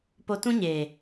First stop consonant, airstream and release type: plain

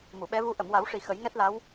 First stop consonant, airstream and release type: implosive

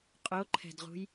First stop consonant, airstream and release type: ejective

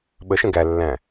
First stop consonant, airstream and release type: implosive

